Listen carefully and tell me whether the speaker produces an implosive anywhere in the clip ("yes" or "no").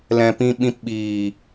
yes